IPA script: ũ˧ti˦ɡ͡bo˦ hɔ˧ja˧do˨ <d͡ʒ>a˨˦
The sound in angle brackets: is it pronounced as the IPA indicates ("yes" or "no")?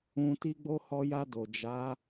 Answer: yes